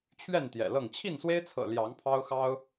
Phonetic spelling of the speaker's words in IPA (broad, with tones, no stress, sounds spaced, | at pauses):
t͡ɕʰ ɥ ɛ˥˨ n t̪ j ɛ̰˨˩ l ɤ˥˨ ŋ t͡ɕʰ i˥˨ n s w e˦ ɪ̯ t͡sʰ ɤ̰˨˩ l j ɑ˨˦ ŋ pʰ ɑ˦ ʊ̯ x ɑ˦ ʊ̯